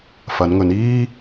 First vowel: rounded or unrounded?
unrounded